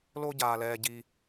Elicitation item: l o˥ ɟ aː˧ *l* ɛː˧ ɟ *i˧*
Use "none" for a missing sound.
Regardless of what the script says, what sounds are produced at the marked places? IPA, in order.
l, i˧

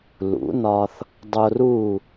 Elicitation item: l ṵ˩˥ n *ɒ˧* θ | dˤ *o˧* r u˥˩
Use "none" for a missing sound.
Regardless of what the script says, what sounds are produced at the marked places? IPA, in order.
ɒ˧, o˧

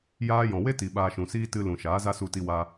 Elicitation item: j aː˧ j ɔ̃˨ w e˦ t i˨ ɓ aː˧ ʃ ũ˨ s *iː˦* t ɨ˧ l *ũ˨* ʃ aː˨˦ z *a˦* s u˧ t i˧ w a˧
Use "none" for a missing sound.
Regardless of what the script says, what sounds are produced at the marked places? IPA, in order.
iː˦, ũ˨, a˦

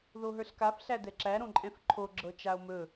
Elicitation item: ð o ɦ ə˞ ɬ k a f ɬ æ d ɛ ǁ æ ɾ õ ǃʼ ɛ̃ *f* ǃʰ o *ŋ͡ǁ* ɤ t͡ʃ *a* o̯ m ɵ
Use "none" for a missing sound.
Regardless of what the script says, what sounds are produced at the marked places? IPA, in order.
f, ɡ͡ǁ, a

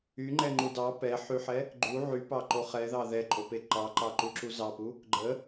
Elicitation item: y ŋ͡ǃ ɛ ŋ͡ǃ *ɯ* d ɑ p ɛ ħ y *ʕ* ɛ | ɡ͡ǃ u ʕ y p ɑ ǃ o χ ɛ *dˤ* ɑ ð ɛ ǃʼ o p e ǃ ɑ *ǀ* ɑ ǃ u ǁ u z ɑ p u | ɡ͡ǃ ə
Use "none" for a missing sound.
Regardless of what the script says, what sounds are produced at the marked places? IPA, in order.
u, ħ, ð, ǃ

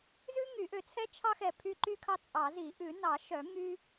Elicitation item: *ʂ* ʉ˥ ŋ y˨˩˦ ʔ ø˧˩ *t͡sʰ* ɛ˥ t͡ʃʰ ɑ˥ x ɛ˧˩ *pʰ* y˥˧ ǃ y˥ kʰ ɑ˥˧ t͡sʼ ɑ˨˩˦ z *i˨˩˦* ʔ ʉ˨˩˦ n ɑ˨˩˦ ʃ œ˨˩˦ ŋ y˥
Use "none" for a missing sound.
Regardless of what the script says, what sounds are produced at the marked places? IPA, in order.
z, t͡sʰ, pʰ, i˨˩˦

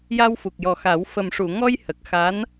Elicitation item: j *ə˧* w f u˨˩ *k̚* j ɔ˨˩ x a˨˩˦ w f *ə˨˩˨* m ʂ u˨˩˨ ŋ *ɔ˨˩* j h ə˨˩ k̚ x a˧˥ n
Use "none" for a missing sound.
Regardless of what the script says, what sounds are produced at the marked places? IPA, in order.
a˧, k̚, ə˨˩, ɔ˧

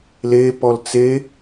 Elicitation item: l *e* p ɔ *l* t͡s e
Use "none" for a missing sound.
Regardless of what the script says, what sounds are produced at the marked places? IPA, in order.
e, l

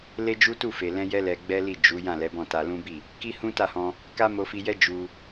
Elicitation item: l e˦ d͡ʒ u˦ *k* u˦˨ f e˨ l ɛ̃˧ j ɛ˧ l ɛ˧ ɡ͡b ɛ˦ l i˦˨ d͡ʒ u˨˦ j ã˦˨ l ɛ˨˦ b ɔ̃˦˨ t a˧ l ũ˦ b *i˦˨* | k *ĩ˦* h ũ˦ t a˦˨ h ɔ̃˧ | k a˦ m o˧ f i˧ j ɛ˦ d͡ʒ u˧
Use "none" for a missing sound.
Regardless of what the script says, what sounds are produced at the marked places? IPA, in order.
t, i˦˨, i˦

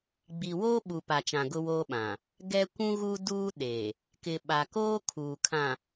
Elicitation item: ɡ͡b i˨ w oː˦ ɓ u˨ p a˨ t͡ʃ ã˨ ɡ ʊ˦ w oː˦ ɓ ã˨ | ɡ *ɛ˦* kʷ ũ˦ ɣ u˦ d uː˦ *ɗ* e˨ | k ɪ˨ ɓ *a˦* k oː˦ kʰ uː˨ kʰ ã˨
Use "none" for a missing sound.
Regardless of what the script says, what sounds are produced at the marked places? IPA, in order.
ɛ˦, ɗ, a˨

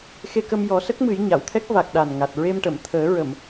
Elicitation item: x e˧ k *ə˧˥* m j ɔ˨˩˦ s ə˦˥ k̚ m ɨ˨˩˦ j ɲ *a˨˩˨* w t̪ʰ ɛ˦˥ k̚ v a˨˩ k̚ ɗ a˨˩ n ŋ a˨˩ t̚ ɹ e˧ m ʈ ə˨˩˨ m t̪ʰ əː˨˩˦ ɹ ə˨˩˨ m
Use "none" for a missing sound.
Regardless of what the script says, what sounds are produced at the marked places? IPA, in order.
ə˧, a˨˩˨

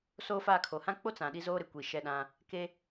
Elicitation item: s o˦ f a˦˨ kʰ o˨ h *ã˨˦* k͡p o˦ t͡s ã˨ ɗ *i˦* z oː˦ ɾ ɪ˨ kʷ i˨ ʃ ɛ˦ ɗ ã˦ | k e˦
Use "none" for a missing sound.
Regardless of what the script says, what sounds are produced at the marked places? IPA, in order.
ã˦, i˦

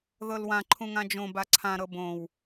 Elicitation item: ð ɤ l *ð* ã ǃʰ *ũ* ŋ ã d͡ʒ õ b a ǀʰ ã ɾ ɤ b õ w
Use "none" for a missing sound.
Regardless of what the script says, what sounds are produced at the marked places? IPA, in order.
w, ũ

